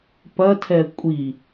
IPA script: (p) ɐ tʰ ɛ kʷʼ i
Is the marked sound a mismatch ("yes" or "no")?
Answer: no